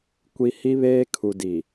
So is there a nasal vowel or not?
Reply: no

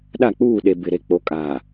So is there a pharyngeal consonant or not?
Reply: no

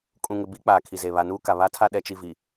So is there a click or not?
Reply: no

